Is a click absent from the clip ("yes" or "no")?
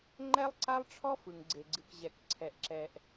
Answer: no